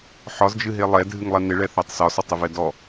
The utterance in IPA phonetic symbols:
ħ ɒ z d͡ʒ ɨ ɦ e lˠ ɛ dʱ ɨ ŋ lˠ ɛ n ɪ ɭ ɛ θ ɛ tˤ s ɒ s ɒ tˤ ɪ v ɛ d ɔ

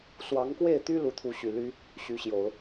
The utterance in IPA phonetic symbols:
s w ɑ˧˥ ŋ k w e˥˩ ɪ̯ t̪ y˥ l u˧˥ t̪ʰ u˧˥ ɕ y˨˩ l y˥ | ɕ y˧˥ ɕ j o˨˩˦ ʊ̯

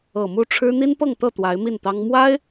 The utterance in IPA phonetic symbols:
ɤ˨˩ m u˥˩ ʈ͡ʂʰ ɻ̩˥ n̪ i˥ n p ɤ˥˧ ŋ t̪ ɤ˥˩ t̪ w a˧˥ ɪ̯ m i˥˩ n t̪ ɑ˥ ŋ m w a˥ ɪ̯

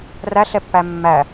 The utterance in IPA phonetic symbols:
r æ ɬ ɛ pː æ mː æ

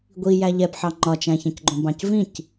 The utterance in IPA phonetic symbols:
ɡʷ i j æ ʎ ɛ b ħ ɑ ŋ͡ǃ ɒ t͡ʃ æ̃ ç ɐ̃ c ɡ͡ǃ õ b ɑ̃ c v ĩ c

